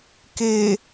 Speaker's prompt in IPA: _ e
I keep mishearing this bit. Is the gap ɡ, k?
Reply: k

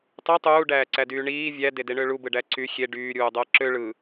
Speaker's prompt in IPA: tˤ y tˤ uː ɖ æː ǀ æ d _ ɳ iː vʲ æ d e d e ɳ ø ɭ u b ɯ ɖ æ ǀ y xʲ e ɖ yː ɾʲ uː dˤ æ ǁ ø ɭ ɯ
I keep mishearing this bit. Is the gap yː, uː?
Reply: yː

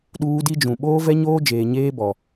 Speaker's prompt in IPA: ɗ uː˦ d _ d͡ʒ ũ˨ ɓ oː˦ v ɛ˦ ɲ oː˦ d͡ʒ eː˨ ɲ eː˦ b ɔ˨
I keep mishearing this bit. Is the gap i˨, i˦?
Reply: i˦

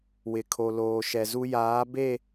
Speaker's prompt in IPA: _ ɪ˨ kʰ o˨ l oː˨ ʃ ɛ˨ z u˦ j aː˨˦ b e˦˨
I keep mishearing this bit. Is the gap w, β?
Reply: w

